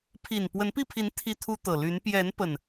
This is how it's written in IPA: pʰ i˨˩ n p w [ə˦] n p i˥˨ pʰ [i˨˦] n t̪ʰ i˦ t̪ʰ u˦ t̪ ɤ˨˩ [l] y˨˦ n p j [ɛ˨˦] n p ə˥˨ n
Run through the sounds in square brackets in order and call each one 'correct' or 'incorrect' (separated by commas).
incorrect, correct, correct, correct